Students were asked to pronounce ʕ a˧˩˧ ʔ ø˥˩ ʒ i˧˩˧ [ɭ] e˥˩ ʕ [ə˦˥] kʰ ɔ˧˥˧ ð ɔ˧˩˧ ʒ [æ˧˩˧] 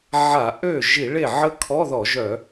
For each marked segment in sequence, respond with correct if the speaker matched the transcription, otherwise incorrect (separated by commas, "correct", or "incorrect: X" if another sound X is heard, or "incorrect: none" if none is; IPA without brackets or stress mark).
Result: correct, correct, incorrect: œ˧˩˧